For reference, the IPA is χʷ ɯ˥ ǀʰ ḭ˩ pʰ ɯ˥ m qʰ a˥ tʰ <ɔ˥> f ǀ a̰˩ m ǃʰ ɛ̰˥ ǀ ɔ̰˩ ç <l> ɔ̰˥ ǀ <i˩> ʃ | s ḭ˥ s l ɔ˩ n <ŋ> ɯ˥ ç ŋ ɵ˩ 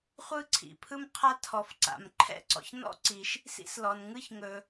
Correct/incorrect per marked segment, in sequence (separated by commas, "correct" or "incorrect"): incorrect, incorrect, correct, correct